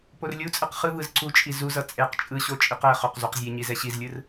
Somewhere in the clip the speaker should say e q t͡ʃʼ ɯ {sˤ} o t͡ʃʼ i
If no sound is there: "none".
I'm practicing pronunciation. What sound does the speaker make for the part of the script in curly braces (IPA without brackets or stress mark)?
ɕ